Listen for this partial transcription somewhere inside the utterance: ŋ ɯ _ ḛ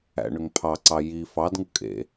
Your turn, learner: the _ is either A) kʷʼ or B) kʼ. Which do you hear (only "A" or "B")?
B